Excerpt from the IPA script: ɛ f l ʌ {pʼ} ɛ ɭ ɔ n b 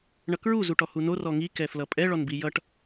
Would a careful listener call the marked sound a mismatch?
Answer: no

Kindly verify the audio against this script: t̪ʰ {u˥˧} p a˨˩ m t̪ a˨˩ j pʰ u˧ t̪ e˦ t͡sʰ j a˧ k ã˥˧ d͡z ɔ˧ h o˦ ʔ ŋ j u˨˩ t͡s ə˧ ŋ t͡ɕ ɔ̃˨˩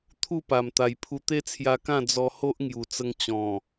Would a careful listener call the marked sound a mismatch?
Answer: no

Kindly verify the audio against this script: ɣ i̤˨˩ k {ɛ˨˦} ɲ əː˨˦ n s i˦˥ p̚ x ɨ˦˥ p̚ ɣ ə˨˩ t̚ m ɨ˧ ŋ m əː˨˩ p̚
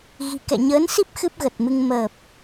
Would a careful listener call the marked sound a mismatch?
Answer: yes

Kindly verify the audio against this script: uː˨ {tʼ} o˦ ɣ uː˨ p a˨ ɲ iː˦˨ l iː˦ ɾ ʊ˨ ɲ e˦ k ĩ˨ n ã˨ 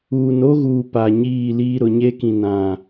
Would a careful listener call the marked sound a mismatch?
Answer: yes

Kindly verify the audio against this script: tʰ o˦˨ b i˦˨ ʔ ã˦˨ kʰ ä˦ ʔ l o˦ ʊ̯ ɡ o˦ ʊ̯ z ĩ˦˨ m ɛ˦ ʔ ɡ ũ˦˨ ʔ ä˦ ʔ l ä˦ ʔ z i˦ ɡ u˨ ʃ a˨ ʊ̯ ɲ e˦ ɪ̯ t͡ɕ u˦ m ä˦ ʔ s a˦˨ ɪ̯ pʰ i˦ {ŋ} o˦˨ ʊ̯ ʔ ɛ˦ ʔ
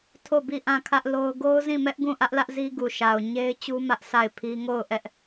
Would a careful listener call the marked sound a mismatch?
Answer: no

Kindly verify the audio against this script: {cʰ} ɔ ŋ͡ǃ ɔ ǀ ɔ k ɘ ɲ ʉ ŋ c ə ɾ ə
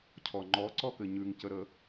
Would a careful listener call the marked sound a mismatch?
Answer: no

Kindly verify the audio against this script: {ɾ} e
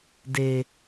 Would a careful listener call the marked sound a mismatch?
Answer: yes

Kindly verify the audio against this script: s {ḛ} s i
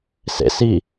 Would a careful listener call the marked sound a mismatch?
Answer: no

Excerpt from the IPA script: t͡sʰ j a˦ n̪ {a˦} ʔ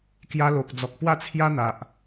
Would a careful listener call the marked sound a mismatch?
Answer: yes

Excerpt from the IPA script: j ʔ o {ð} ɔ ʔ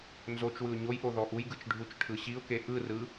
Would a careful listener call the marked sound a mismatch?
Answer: no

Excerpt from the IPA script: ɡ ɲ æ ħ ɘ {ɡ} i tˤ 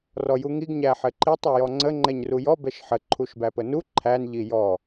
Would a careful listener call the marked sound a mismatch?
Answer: yes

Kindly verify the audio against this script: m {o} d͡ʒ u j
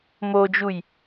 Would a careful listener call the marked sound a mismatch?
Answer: no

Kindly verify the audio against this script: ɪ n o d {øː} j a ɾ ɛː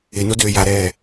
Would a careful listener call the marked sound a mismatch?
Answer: no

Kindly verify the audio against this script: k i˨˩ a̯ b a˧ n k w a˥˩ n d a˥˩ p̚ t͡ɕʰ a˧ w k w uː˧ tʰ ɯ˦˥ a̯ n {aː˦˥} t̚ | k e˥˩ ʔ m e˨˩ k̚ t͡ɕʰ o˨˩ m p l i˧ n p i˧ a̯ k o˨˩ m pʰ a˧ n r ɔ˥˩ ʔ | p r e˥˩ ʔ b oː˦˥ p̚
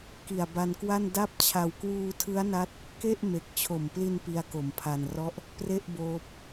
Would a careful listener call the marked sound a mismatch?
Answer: yes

